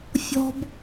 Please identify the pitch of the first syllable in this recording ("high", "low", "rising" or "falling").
high